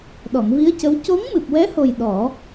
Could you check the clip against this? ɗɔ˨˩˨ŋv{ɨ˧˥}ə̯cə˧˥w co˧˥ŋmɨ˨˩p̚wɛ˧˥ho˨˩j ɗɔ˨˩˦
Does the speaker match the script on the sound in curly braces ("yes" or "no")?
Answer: no